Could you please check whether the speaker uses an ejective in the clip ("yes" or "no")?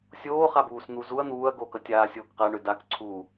no